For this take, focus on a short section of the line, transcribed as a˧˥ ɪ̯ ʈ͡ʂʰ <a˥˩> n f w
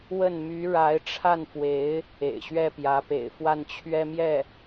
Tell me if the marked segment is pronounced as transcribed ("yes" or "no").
yes